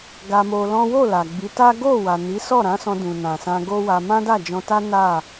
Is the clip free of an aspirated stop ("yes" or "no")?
yes